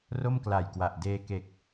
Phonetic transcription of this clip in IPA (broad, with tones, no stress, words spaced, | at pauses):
ro˥˩mkla˨˩jkwa˨˩ʔ deː˧ke˨˩k̚